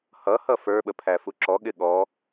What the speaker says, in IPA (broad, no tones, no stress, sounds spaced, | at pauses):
h ʌ h ʌ f ə˞ ɓ ə pʰ æ f u ǁ ɔ ɠ ɪ ɠ ɔ